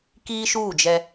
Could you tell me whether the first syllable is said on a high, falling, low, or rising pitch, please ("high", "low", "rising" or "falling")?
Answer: high